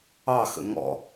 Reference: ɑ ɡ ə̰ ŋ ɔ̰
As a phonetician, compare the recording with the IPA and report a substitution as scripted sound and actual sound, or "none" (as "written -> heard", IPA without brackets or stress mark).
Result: ɡ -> x